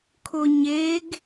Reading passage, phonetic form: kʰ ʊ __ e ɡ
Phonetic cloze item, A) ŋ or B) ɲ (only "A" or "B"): B